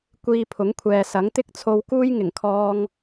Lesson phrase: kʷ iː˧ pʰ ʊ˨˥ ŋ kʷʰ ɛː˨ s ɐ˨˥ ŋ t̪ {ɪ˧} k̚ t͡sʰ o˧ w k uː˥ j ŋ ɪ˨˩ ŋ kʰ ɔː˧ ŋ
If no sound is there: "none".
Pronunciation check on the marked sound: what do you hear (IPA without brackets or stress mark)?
ɪ˥